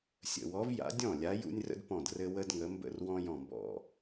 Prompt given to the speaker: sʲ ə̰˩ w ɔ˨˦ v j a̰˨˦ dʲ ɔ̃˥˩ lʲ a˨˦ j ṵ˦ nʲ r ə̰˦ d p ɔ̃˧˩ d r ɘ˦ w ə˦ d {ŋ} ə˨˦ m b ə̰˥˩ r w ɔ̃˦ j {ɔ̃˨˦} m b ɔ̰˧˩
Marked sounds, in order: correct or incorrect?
correct, incorrect: ɔ̃˧˩

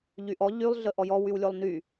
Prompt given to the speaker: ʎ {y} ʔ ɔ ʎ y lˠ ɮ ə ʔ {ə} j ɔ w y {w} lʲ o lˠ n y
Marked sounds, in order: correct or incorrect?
correct, incorrect: ɔ, correct

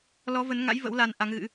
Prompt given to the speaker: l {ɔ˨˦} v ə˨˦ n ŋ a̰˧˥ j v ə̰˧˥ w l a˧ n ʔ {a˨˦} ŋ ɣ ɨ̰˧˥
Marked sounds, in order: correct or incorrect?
correct, correct

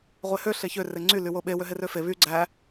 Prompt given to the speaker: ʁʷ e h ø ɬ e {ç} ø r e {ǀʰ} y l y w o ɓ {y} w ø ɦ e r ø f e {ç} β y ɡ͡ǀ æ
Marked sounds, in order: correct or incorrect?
correct, incorrect: ŋ͡ǀ, incorrect: e, incorrect: none

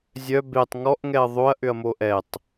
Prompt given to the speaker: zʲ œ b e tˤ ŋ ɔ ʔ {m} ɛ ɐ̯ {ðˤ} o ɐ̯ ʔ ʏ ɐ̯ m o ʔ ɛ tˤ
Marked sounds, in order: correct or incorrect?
incorrect: ŋ, correct

